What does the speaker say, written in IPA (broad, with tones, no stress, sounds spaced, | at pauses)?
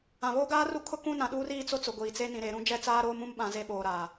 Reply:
ã˨ β oː˦ ɡ aː˦ r u˦ kʰ ʊ˦ k ũ˦ n ã˨ ɗ uː˦ r iː˦ t͡s o˦ t͡s ʊ˨ ɡʷ iː˨ t͡s e˦ n ĩ˨ ɾ e˨ ɾ ũ˦ d͡ʒ ɛ˦ t͡s aː˦ ɾ oː˦ m ũ˦ m ɓ ã˨ z e˦˨ ɓ oː˨ ɾ aː˨